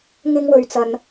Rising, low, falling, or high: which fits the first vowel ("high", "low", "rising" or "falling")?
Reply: high